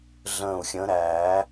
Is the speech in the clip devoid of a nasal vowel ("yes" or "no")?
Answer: no